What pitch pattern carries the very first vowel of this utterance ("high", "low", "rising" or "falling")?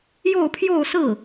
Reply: falling